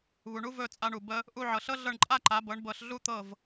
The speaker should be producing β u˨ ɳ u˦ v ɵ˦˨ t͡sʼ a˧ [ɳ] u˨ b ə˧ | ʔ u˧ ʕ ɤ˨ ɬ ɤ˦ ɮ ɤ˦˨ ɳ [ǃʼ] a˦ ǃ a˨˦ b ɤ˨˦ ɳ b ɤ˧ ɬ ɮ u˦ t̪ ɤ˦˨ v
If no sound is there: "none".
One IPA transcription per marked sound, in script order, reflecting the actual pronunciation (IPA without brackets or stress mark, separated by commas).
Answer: ɳ, ǃʼ